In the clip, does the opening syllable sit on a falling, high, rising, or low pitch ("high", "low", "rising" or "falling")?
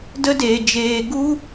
high